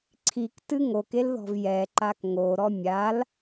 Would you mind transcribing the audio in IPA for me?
ǀʰ i k t ɨ ŋ o k e l ð ɔ̤ v j ɛ ǃ a k ŋ o ɾ ɔ mʲ a l

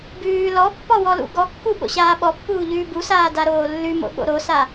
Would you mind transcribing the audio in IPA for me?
b ʉː l ɔ pː ɔ w ɔ l ṵ ɡ ɔ kː u ɓ o̰ ɕ aː ɓ ɔ pː uː ʎ ʉː b u s aː d a ɾ oː lː ʉ m o̰ ɠ o̰ ɾ o s a

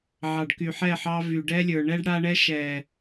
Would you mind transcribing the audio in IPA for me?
ʕ ɑ˨ ɖ k y˨ ħ ɛ˦˨ ħ ɑ˦ v y˨ ɖ ɛ˦ lʲ ə˞˨ ɳ ɛ˦ ɖ ɽ a˦ ɳ ɛ˦ ʃ ɛ˨

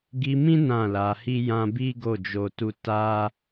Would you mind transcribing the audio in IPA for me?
ɡ i˧ m ĩ˦ n ã˦˨ l a˧ h i˦ j ã˦ b i˦ ɡ o˦˨ d͡ʒ o˧ t u˦ t a˦

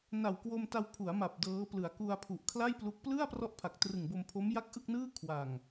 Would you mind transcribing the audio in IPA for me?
n a˨˩ w k w o˧ m t a˧ w pʰ u˩˦ a̯ m a˨˩ p̚ d ɤː˦˥ p l ɯ˩˦ a̯ k u˧ a̯ pʰ u˨˩ ʔ kʰ l a˥˩ j p l u˦˥ k̚ p l ɯ˥˩ a̯ p r ɔ˥˩ ʔ pʰ a˨˩ k̚ t r ɯ˨˩ ŋ b o˧ m pʰ o˦˥ m j a˥˩ k̚ ʔ ɯ˥˩ k̚ n ɯː˥˩ kʰ w a˨˩ ŋ

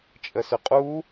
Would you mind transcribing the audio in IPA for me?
t͡ʃʼ ə s ʏ qʼ u

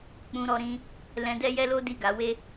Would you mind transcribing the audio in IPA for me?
k͡p ũ˧ ɾ ɔ˧ ɾ ĩ˧ | l ɛ̃˧ d ɛ˦ j ɛ˦ l o˦ d i˦˨ ɡ a˨˦ w e˦

